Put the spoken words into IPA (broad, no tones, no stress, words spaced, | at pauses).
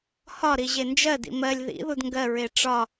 hɒɾi ʑend͡ʒɜ dḭmɜlʲ ðḭðud ŋɡɜɹe ʈ͡ʂɒ